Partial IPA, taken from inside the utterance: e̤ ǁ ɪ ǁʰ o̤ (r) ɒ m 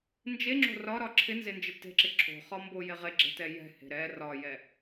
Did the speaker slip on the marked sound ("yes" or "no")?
yes